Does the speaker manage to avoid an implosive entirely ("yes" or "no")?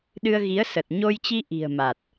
no